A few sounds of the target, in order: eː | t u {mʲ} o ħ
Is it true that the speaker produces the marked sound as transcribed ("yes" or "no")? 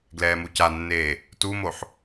no